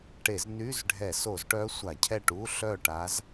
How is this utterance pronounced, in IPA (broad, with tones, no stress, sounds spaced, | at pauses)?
ʈ e˧˩˧ z n y˧˥˧ z ɖʱ ɛ˧˩˧ s o˧˩˧ z ʈ œ˧˥ sʷ a˧˩˧ cʰ ɛ˥˨ ʈ u˧˥˧ ɬ œ˥˨ ʈ a˧˥ z